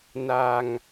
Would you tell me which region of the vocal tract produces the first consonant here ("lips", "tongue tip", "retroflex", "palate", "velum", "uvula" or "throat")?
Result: tongue tip